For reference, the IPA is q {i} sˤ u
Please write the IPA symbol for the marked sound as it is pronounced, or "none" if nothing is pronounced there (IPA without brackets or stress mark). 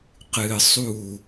ɨ